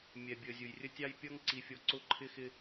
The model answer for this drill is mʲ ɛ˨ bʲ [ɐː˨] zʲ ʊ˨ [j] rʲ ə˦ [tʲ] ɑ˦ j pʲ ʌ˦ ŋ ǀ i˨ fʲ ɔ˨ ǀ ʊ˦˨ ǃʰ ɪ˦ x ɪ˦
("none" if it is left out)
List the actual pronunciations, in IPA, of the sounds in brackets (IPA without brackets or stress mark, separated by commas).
əː˨, j, tʲ